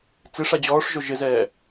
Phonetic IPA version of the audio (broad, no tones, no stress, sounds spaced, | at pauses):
t͡s ɪ ʂ a d͡ʑ ɔː ʂ ʒ o ʒ ɪ z ɛː